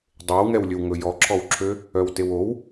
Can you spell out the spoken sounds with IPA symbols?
dˤewŋɛwlʲɵw ŋɵjɔǁʰɔwǁʰø | œwtewow

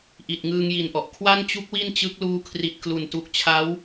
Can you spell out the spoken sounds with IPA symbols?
ʔi˨˩t̚ŋɯː˧ŋji˨˩nʔɔ˨˩ʔ kʰwa˥˩nt͡ɕu˦˥k̚ wi˥˩nt͡ɕɯ˦˥k̚luː˦˥ kʰri˨˩t̚klu˨˩ntu˨˩k̚t͡ɕʰa˦˥w

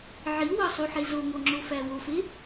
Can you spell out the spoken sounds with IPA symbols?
ʕiwɒsˤuħe zoŋoŋ͡ǁofæ wofe

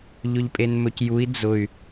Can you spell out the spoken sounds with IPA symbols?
ʎʊʎpʼenmɵcjui̯ d͡zʊy̯

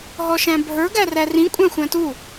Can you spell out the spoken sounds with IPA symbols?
ɦɔʃæ̃bʱə˞ ɡærærĩ kʷʼæ̃xʷæ̃tu

